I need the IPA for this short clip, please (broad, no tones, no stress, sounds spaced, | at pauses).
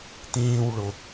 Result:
t ĩː w ɭ ʊ